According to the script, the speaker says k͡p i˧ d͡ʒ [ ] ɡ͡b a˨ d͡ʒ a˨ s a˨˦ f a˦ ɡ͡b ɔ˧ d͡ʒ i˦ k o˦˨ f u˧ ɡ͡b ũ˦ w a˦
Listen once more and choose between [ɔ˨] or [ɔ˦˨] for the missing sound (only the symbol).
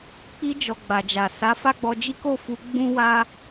ɔ˨